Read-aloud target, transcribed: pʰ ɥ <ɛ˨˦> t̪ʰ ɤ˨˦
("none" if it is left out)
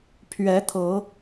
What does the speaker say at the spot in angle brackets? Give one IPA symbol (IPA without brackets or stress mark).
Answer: ɛ˨˦